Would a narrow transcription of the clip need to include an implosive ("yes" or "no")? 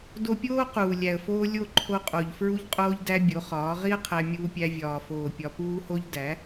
no